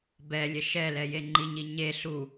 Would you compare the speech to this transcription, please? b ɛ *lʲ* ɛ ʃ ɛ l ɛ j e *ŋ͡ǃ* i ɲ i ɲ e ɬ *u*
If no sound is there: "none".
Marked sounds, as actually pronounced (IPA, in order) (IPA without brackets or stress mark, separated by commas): lʲ, ŋ͡ǃ, u